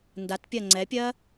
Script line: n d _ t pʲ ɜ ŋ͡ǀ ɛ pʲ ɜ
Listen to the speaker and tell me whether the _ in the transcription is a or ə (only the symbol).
a